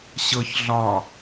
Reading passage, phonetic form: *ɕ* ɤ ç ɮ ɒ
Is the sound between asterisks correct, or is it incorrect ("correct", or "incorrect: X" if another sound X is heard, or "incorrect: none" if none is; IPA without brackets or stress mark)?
correct